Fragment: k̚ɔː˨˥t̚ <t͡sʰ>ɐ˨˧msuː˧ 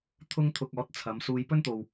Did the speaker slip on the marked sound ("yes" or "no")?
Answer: no